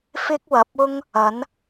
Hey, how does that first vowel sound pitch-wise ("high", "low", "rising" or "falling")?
high